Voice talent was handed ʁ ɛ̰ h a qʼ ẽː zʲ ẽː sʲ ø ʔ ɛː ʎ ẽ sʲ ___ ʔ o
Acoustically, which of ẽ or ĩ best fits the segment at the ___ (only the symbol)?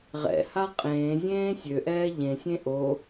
ẽ